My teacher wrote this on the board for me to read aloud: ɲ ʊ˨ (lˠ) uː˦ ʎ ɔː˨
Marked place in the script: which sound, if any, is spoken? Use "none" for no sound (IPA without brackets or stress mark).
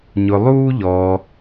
lˠ